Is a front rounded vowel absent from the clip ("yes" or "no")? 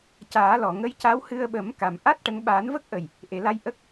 yes